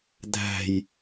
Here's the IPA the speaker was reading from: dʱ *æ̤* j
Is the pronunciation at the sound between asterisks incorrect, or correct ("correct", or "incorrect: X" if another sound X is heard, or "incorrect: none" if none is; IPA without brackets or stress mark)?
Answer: correct